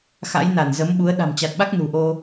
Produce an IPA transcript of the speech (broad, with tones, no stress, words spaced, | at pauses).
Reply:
xa̰˧˥jna˧˩nzə˨˦m ɓu˨˦ə̯ ɗa̤˨˩mt͡ɕa˨˩t̚ɓa˦˥k̚ nṳ˨˩ʔo˧